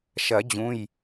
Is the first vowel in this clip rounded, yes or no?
no